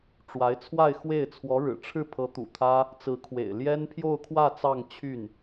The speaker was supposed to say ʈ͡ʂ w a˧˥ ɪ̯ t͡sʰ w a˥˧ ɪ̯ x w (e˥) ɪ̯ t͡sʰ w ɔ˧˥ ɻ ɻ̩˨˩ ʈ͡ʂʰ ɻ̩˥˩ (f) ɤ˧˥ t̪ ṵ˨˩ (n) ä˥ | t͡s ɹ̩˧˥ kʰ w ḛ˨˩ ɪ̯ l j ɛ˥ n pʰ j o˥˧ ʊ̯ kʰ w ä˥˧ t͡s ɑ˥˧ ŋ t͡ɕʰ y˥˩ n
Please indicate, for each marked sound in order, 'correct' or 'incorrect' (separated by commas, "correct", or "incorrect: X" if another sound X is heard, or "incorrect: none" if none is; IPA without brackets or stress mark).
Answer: incorrect: e˥˩, incorrect: pʰ, incorrect: t̪ʰ